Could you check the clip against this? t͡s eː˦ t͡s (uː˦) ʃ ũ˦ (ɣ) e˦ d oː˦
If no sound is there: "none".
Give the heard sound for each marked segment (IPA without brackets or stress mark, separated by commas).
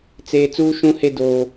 uː˦, h